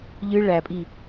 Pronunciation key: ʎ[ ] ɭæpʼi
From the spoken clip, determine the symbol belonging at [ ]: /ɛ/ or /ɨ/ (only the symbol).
ɨ